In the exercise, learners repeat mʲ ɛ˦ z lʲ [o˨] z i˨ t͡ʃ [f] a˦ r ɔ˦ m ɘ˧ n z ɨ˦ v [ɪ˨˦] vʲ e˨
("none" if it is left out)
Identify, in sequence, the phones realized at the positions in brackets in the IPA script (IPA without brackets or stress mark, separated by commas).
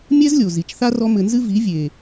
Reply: o˨, θ, i˨˦